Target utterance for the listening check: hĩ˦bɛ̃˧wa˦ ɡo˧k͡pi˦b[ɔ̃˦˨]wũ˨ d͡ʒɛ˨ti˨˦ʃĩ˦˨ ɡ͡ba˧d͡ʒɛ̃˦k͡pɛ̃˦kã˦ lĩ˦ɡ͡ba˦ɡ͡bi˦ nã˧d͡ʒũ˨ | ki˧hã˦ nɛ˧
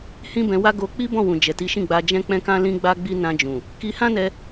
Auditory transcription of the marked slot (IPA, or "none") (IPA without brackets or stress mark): ɔ̃˦˨